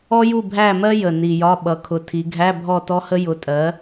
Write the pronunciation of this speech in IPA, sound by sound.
ɔ˥ j u˥˨ bʱ æ˥˨ m ɜ˥ j ə˨˩ n i˨˩ j ɒ˧˥˧ ɓ ʌ˩˧ kʰ ʊ˨˩ tʰ i˩˧ ɡʱ æ˧˥˧ bʱ ɔ˥˨ t ɔ˥ h ə˥ j ʊ˨˥ tʼ ɜ˨˥

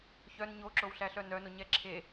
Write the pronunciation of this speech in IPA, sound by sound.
ç œ n ɲ o ǁ o w ɬ æ ɬ œ n œ n o ɲ ɛ ǁʰ e

